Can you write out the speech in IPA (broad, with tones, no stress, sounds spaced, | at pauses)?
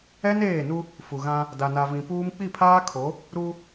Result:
ɛ˦ n eː˦˨ n u˦ | f u˨ ɣ ã˦ | d a˨ n a˨ v ĩ˨ p uː˦ m k͡p i˦˨ pʰ aː˦ kʰ o˨˦ | ɾ u˦